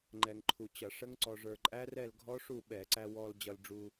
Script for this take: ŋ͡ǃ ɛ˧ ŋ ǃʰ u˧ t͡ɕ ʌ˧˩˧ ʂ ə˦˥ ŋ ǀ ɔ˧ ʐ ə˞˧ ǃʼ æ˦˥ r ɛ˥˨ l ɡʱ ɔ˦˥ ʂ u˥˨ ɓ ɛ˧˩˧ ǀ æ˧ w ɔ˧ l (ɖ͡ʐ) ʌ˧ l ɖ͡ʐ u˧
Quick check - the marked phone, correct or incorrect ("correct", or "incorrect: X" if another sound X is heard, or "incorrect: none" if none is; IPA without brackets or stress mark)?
incorrect: d͡ʑ